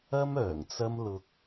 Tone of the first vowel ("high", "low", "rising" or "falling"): high